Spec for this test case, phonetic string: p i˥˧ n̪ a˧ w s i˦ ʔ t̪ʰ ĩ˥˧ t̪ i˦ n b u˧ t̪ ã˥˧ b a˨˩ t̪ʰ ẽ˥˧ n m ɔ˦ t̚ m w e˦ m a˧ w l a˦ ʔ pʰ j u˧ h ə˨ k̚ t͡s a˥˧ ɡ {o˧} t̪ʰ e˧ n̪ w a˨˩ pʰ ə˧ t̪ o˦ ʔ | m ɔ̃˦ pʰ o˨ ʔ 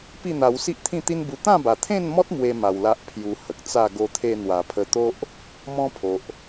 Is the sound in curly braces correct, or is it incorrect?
correct